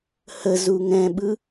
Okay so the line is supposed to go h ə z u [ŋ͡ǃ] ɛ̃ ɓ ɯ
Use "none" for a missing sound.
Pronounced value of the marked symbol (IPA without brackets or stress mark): ŋ